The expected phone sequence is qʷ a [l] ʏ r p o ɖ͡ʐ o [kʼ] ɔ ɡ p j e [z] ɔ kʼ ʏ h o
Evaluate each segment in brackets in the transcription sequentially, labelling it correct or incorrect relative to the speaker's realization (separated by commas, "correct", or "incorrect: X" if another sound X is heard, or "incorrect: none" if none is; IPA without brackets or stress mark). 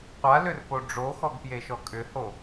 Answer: correct, incorrect: x, incorrect: ʃ